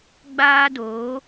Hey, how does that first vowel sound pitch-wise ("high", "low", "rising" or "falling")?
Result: high